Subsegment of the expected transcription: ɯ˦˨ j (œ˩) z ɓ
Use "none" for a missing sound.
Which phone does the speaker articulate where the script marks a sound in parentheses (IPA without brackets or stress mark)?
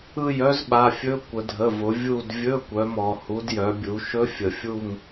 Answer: œ˦˥